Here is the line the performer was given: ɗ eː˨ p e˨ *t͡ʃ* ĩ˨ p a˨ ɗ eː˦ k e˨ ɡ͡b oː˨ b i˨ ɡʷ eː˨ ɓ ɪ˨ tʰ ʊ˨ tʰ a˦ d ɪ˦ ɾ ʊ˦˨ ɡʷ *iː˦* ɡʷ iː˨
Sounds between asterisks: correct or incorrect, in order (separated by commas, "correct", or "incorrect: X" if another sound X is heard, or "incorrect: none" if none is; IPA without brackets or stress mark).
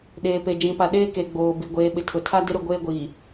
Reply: incorrect: d͡ʒ, incorrect: eː˦